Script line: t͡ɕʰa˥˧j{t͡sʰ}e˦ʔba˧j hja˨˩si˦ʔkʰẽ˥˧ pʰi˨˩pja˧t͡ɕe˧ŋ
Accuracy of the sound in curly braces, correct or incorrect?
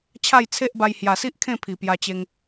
correct